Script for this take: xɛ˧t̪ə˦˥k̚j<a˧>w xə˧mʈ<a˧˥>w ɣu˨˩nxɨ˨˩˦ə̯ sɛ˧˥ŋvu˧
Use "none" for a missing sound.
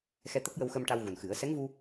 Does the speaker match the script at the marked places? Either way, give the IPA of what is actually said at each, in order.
ə˧, a˧

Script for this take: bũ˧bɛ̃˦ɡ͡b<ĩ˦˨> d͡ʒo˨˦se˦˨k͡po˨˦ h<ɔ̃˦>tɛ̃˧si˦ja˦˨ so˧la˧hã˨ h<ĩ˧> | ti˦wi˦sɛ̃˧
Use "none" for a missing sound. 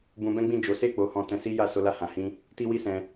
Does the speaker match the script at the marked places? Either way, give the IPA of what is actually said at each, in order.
ĩ˦˨, ɔ̃˧, ĩ˧

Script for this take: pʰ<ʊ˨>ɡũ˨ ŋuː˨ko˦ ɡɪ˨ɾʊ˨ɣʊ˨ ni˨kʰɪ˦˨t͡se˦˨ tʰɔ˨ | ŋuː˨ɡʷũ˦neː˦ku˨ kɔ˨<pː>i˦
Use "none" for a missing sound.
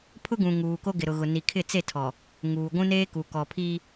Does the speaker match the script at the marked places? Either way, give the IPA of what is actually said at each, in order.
ʊ˦, pʰ

